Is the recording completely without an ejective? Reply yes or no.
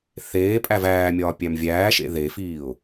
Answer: no